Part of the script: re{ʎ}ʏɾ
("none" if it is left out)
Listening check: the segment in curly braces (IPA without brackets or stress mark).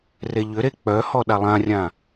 ʎ